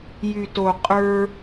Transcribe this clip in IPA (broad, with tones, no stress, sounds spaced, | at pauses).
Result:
j y˨ t o˨ qʼ ə˞˧